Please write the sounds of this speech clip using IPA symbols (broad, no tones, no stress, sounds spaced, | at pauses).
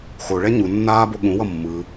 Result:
x o ɭ ɛ ɲ u nː aː b o ɠ ũ w ʌ mː ɯ